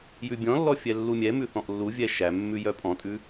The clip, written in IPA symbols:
j ʉ bʲ ɔ̃ lː ɔ fʲ ɛ lː u mʲ ɛ m ʉ θ ɔ̃ ʔ lː u vʲ ɛ ʃ æ mː ʉ j œ pʼ ɔ̃ tʼ ʉ

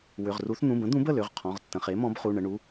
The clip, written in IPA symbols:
w ʏ˩˧˩ ʁ r u˨˥ θ n̪ ũ˩˧˩ b ə̃˨˥ d̪ ũ˨˥ b ə˩˧˩ l ʏ˩˧˩ ʁ qʰ ɔ̃˩˧˩ ʁ tː ə̃˩˧˩ χ e˨˥ m ɔ̃˨˥ b χ u˩˧˩ ɳ ə˩˧˩ ɳ u˩˧˩

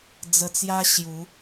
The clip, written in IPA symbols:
d͡z ə˧ t͡s j a˦ ɕ j u˨˦

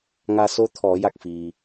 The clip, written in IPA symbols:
ŋ a˧ s oː˧˥ t̪ʰ ɔː˩˧ j a˧˩ k̚ f iː˩

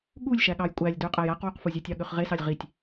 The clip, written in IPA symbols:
ɠ u lʲ ʃ æ ɠ ɑ j kʷʼ æ lʲ d ø qʼ æ j æ q w u q f u zʲ e tʲ ɑ ɠ ø χ ʁ e s ɑ lʲ ʁ i tʲ

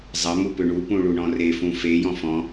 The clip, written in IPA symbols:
zˤ ɐ m u p ʏ ɳ u p ũ ɭ u ɳ ɔ̃ r e f ũ f e j ɔ̃ f ɔ̃

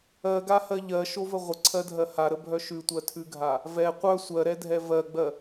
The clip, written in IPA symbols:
ɜ ɡ a h ɜ ʎ ɜ ʃ o v ə ʁʷ ə ǀʰ ɜ dʱ ɜ h a ɾ ə bʱ œ ʃ ʉ tʷ ɜ tʰ ʉ ɡʱ a | v ɛ qʷ œ sʷ ɜ ɾ ɛ dʱ ɛ v ɜ ɡ͡b ɜ

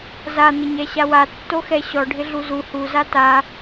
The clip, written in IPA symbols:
z a n̪ ɪ ɲ ɛ ɕ a w a tː o x ɛ ɕ ɔ ɖʱ ɪ ɮ u z u h u z a t a

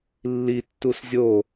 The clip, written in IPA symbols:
lː i tː u s zʲ o

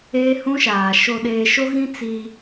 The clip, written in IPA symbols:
eː˦ h ũ˦ ʃ aː˨ ʃ o˨ ɗ eː˨ ʃ o˦ ɣ ĩ˦ t͡s i˦

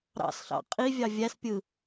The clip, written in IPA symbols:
ɾ ɑ̰ s ɬ ɑ̰ qʼ i vʲ ɑ vʲ æ s pʲ ɯ

